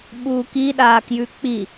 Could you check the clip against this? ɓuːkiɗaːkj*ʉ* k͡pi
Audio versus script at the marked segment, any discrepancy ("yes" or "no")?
no